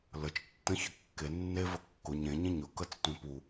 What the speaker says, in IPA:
l ə t͡ʃ tː ə̃ ç ə kː e nː e v ə kː ʊ ɲ ẽ ɲ ẽ ɲ ʊ k ə t͡s tʷ ẽ p u

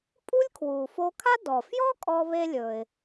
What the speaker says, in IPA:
pʼ u˥ lʲ kʰ w uː˩ f o˧ kʰ a˥ d ɔ˩ f j ɔ˥ kʼ ɔ˧ β e˧ lʲ ɵ˩ ɪ̯

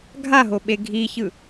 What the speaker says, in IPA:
ɡʱ a ɦ o ɓ e ɡʱ i ç ɯ

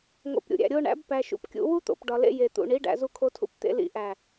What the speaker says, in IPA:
ŋ o̰˧ p ɾʲ ṵ˨ ɾʲ æ̰˨ ɾʲ o˧ ɳ æ̰˨˦ b p æ˧ ʃ ṵ˧ p kʲ ṵ˧ w u˦ t̪ o̰˨ p ɖ ɒ˨ l ḛ˧ j e˨ t̪ ṵ˨ ɳ i˨˦ ɖ æ̰˨ z u˧ kʰ o˧ tʰ ṵ˧ p t̪ ḛ˧ l ḭ˧ ʔ æ˨

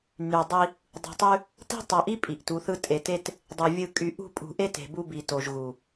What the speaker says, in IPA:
n y˨ dˤ i˦ | dˤ ṳ˨ tˤ y˦ | t i̤˦ tˤ o˨ ʔ i˦ pʼ i˨ ʔ t u˨˦ θ ɯ˦ tʼ e˨ t e˦ t | dˤ ɯ˨ vʲ ɯ˦˨ kʼ y˨ ʔ ṳ˦˨ pʼ ṳ˨ ʔ e˦ t e̤˨ b u˦ b i˨ t o˨ ʒ ɣ u˨

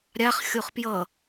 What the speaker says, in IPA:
ɾʲ a χ xʲ o χ p j ʌ

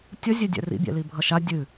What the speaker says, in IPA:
tʲ ʌ zʲ ɛ dʲ ɛ̰ r ḭ bʲ ɛ̰ l i bʱ ʌ ʃ a dʲ ɨ

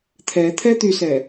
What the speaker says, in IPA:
t̪ʰ ɛ t̪ʰ ɛ t̪ y s ɛ

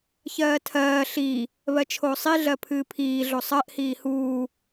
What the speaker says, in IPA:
ç ɜː tʰ ɜː ɬ i | β ɜ t͡ʃʰ oː sˤ i ɮ ɜ pʰ ɨː pʰ iː ɮ o sˤ ɜ ʔ h iː h uː

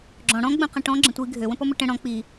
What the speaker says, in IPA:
ɡ͡ǁ ɔ̃ ɽ ɔ̃ ɡ͡b ə̃ q ə̃ ʈ ɔ̃ ɡ͡ǁ ə̃ tʷ i ɡʱ ø w ə̃ p ɔ m ə ʈ ə̃ ɽ ɔ̃ k͡p i

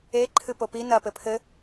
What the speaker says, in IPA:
e ǃʰ ɨ p o p i n ɐ p ɘ pʰ ɘ

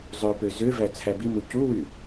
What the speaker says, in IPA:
zˤ ø p ø z ø v æ t͡sʰ æ b i m u c u w y

